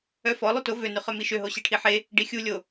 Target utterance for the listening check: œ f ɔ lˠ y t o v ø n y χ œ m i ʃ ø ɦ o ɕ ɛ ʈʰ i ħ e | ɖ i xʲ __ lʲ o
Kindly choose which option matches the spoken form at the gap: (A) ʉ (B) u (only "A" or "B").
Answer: B